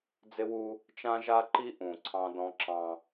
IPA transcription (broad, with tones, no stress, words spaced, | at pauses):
d͡zɪ˦wu˦ | t͡ʃã˦ʒa˦ǃi˦ ʔũ˨ ǀʰɑ̃˦dɔ̃˦ǁɑ̃˦